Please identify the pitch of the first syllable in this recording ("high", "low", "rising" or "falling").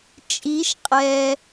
rising